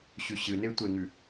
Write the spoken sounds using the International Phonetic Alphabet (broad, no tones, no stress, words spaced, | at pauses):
ɕʉɕɨne tʷeŋʉ